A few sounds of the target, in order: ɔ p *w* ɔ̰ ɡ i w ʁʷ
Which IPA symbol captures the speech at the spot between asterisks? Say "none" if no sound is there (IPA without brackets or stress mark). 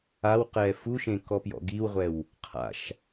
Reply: j